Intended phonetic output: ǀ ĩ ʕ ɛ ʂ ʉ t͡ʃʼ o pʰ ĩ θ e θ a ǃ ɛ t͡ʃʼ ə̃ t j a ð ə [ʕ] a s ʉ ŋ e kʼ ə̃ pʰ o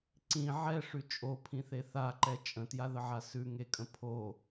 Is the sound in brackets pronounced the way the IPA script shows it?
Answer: yes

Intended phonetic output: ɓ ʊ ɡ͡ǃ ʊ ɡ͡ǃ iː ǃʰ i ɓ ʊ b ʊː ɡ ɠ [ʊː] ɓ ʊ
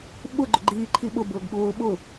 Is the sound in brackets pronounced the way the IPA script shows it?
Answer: yes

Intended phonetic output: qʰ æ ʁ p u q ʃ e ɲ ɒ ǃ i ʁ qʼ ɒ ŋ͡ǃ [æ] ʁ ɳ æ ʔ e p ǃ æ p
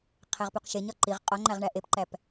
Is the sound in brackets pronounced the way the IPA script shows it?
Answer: yes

